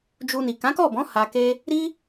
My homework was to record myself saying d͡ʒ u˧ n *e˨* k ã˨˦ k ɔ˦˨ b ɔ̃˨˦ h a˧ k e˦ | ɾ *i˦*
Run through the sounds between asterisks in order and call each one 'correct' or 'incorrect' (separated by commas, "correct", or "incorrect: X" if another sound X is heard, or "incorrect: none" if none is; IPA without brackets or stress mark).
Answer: incorrect: i˨, correct